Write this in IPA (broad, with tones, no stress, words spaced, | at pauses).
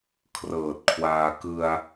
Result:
kʰrɤː˨˩t̚kʰwaː˧ kɯ˧a̯